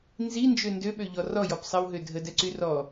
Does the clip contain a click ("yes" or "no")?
yes